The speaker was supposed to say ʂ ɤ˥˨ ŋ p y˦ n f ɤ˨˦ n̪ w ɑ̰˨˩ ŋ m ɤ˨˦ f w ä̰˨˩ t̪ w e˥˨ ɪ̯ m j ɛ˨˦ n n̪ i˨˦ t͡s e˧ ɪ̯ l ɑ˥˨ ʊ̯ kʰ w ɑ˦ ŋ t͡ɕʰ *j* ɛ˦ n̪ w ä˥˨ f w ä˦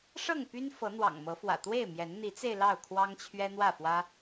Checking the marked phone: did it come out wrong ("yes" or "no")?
yes